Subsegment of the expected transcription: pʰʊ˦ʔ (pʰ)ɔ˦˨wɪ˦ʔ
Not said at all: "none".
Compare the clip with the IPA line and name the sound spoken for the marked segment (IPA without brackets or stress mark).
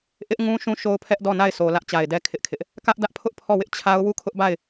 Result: pʰ